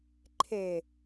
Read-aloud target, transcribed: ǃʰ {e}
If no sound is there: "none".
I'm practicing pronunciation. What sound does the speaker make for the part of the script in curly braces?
e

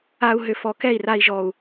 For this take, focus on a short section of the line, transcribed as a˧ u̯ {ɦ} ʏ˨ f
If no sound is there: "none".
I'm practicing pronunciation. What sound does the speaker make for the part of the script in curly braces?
ɦ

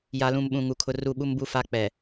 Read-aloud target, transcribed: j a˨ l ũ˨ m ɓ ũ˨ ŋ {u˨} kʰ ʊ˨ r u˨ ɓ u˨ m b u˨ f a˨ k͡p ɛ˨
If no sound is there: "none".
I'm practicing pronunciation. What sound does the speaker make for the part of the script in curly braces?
u˨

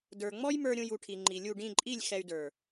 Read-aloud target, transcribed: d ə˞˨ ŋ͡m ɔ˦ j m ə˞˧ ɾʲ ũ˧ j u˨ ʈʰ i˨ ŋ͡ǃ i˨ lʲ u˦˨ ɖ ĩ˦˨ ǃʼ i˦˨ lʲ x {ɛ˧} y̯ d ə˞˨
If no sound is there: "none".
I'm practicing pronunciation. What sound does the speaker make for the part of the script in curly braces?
ɛ˧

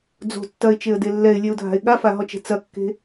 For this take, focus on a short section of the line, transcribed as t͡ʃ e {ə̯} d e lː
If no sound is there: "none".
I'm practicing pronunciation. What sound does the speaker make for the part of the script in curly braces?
ə̯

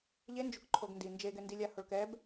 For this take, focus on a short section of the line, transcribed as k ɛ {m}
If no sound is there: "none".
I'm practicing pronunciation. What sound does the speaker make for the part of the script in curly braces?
b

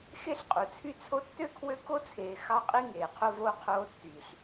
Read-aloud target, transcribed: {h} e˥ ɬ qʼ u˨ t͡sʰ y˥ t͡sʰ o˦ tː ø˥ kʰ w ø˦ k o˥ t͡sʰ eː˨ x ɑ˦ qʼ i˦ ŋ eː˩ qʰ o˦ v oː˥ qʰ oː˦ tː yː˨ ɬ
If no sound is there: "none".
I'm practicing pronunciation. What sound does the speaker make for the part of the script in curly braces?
x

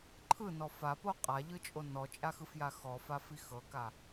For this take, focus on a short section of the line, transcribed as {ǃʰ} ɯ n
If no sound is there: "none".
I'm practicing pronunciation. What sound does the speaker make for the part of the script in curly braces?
ǃʰ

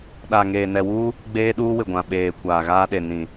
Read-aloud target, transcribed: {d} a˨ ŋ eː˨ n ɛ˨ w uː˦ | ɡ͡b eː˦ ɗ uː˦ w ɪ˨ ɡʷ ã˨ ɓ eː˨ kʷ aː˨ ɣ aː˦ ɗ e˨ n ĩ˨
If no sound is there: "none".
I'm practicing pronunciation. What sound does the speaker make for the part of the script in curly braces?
ɗ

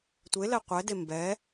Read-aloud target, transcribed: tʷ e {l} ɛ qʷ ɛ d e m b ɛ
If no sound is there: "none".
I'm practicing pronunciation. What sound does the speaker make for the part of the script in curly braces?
l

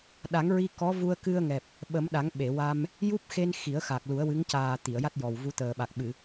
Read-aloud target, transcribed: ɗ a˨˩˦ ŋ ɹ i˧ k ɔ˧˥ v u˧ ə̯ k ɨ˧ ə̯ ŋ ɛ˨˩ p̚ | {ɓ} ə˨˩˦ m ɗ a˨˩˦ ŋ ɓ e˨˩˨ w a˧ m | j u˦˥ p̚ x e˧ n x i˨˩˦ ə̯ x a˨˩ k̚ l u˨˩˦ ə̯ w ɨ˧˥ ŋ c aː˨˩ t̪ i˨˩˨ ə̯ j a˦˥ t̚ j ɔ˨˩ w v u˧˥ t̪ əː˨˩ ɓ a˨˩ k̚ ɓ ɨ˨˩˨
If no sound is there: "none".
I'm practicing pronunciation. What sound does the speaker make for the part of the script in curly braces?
ɓ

